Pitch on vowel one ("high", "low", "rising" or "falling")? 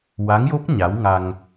rising